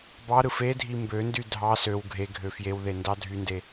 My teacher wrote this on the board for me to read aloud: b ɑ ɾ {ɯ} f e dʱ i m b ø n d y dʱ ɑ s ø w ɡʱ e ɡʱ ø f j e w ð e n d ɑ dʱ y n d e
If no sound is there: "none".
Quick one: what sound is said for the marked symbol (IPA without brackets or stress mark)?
ɯ